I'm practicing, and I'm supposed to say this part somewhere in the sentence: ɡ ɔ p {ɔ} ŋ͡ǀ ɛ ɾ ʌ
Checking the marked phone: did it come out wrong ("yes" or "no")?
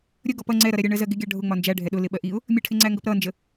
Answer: yes